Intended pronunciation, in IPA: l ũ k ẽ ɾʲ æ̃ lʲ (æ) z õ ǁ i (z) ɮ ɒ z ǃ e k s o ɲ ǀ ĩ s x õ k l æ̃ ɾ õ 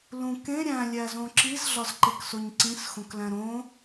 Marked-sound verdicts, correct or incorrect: correct, correct

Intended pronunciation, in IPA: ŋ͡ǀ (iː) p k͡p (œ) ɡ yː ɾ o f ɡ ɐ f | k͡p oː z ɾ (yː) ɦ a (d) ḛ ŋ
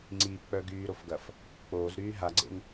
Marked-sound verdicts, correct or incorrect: correct, correct, correct, incorrect

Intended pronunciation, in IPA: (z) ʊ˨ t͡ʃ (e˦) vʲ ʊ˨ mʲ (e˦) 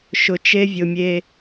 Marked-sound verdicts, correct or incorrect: incorrect, correct, correct

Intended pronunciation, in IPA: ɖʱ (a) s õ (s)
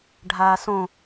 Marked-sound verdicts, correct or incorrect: incorrect, incorrect

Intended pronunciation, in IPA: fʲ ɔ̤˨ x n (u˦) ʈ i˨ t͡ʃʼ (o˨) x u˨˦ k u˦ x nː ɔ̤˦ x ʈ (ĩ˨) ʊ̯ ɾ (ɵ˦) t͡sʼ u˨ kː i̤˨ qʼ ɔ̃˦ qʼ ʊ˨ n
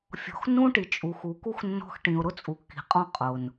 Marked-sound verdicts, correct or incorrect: incorrect, incorrect, correct, incorrect

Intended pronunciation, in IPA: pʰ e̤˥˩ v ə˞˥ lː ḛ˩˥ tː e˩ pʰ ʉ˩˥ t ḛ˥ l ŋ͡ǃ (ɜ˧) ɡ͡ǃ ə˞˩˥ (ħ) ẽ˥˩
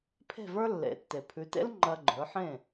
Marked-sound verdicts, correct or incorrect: correct, correct

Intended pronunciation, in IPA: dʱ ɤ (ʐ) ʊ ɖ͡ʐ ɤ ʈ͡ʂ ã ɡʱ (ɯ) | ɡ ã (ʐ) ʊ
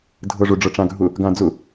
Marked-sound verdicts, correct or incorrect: correct, incorrect, incorrect

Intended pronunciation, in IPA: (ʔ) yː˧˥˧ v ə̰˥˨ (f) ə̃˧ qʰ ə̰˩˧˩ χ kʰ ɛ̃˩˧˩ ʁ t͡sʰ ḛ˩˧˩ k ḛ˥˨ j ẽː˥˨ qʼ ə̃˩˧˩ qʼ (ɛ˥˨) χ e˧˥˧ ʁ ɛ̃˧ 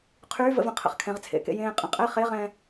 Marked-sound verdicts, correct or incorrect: incorrect, incorrect, correct

